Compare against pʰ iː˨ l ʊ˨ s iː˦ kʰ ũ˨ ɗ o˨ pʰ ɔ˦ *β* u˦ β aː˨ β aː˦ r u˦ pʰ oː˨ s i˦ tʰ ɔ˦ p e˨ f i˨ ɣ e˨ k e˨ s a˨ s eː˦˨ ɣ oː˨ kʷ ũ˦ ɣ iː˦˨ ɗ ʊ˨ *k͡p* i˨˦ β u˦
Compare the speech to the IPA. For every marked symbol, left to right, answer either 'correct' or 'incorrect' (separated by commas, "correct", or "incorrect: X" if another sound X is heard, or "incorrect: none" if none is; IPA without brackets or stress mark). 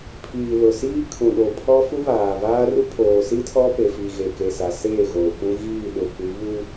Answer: incorrect: f, incorrect: kʷ